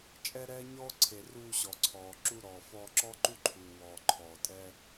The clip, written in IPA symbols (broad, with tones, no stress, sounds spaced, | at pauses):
t͡ʃʼ ɛ˥ ɾ ɛː˥ ɲ ɔː˥ ǀʰ e˩ r uː˧ ɕ ɔ˩ ǀʰ ɔː˩ ǁ u˧ ɾ ɔː˩ f ɔː˧ ǁ ɔ˥ ǃ u˥ ǃʰ uː˩ w ɔː˩ ǃʰ ɔː˩ tʼ ɛː˧